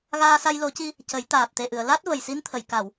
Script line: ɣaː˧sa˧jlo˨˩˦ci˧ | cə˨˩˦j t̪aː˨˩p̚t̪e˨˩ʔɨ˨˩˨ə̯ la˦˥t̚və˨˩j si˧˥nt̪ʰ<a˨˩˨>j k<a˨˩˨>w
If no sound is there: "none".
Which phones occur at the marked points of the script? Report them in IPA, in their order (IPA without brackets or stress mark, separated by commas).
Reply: ə˨˩˨, a˨˩˨